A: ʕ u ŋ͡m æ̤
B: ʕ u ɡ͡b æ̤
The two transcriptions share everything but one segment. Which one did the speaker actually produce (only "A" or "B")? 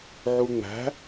A